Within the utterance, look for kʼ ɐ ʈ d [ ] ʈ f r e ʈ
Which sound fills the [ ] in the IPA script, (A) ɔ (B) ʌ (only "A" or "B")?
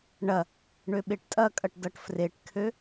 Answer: B